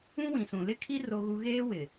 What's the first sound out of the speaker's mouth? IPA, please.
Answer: ũ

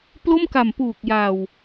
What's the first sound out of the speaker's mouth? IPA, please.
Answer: p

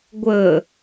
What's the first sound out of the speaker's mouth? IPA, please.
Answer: ɡʷ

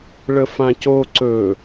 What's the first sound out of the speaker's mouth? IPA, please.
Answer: ɭ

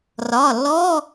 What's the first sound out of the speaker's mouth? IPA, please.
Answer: r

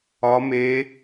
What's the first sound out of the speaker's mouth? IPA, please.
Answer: ɒ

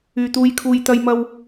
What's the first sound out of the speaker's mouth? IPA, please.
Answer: yː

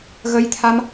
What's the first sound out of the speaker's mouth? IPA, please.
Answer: ɣ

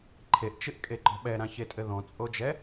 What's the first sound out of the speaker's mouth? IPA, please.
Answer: ǃʰ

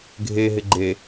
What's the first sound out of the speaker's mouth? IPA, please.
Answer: ɡʱ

